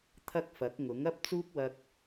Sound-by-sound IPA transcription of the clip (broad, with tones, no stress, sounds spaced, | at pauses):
t̪ʰ ɐ˥ k̚ f ɐ˨˥ k̚ ŋ ʊ˨˥ ŋ ɐ˥ p̚ t͡s uː˥ k̚ w ɐ˧ k̚